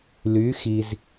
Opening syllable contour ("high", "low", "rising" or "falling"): rising